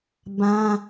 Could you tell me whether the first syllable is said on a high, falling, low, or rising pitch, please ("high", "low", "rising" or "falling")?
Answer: high